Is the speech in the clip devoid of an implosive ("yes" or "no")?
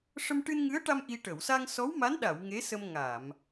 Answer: no